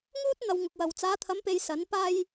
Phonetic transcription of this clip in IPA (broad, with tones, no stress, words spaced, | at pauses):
ŋuː˥t̚ n̪ɐ˧wŋʊ˨k̚wɐ˨w t͡saː˨˧t̪ʰɐ˨˧mpe˨j sɐ˨˥n paː˧j